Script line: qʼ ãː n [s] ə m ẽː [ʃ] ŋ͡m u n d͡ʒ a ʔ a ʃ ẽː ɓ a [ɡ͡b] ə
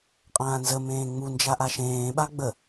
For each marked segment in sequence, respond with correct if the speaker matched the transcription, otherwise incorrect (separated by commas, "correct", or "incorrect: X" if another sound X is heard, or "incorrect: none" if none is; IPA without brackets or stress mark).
incorrect: z, incorrect: none, correct